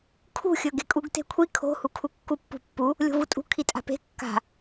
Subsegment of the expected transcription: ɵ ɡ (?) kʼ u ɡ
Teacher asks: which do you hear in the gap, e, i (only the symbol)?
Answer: e